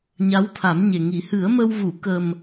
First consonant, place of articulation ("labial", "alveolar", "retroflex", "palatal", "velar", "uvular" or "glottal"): palatal